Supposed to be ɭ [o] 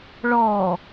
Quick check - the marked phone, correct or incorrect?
incorrect